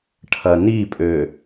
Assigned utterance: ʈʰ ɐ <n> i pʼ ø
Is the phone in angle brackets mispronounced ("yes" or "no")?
no